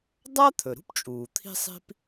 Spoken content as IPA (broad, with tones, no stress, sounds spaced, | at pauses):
dˤ a˥ t̪ʰ ɵ˩ ɾ ṳ˥ p t͡ʃʼ uː˩ t̪ʰ i̤˥ sˤ i̤˥ p